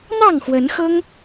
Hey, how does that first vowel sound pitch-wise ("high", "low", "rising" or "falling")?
falling